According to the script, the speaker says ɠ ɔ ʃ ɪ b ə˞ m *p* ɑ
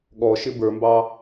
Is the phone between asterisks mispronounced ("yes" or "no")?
yes